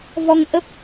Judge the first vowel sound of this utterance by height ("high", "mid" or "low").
mid